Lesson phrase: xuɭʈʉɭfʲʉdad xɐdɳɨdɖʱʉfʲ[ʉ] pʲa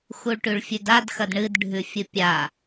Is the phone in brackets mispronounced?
yes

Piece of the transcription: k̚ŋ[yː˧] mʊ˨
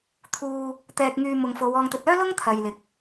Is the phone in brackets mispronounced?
no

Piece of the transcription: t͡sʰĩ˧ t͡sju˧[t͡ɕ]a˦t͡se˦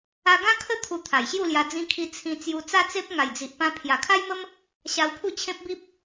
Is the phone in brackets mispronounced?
yes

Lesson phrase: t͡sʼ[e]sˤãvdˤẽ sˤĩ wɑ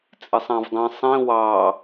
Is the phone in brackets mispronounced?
no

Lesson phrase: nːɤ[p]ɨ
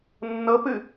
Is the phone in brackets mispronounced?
no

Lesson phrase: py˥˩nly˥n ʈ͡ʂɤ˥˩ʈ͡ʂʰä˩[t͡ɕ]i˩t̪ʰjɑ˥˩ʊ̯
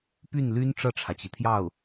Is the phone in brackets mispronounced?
no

